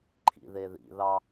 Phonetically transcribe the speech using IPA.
ǃʰ ḭ ð e ð ḭ ð ɑ

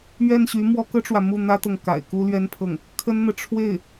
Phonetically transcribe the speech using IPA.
ɥ ɛ˥˩ n ɕ y˧˥ m w ɔ˥ k ɤ˥ ʈ͡ʂ w ä˨ m u˥˩ n̪ ä˥ t̪ ɤ˨ ŋ k a̰˨˩ ɪ̯ k u˥ l ɥ ɛ˥ n pʰ ɤ˥˩ ŋ | kʰ ə˥ n n̪ ɤ˨ ʈ͡ʂʰ w e˥˩ ɪ̯

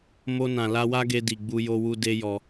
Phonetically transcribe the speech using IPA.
m o˧ n ã˨ l a˧ w a˦ ɡ e˧ d i˨ ɡ͡b u˧ j o˧ w u˧ d e˦ j ɔ˧

